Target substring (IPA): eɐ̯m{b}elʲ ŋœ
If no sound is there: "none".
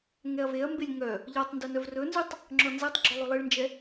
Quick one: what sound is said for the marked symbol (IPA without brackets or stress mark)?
b